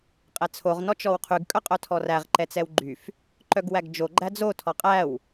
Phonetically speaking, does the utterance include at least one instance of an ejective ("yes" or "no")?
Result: yes